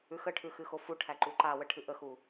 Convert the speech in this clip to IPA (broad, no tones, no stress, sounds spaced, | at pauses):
ʉ x ə ʈʰ ʉ x ɨ x o f u ʈʰ æ ǃ u ǃ a w ə ʈʰ ɨ ʔ ə x u